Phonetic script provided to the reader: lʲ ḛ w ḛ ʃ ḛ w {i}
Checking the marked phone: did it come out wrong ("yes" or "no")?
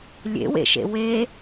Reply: yes